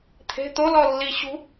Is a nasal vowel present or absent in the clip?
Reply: absent